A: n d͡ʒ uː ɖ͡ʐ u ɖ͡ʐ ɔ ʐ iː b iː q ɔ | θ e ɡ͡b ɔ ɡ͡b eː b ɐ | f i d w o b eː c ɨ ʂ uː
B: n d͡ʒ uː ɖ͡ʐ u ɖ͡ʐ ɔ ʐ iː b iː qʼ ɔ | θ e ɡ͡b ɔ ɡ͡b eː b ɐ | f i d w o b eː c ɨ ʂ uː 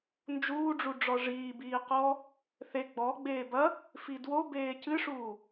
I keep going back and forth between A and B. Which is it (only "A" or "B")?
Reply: A